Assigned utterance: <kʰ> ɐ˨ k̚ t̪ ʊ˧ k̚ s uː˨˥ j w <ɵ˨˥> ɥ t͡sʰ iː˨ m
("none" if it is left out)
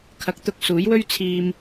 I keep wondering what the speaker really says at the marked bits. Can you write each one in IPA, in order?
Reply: kʰ, ɵ˥

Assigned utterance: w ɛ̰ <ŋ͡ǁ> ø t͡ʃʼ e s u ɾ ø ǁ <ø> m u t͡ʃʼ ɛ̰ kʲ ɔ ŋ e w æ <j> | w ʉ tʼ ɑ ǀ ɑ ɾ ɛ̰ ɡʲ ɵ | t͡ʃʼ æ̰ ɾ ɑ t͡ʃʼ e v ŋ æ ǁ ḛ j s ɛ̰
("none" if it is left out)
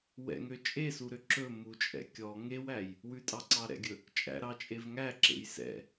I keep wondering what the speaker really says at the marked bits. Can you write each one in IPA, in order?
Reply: ŋ, ɵ, j

